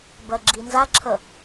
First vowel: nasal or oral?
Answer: oral